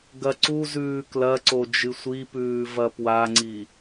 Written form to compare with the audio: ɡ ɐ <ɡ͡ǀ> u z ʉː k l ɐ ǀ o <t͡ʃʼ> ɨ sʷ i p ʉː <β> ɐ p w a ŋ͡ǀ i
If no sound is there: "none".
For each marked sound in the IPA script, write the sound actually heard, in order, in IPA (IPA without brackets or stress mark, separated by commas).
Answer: ǀ, d͡ʒ, v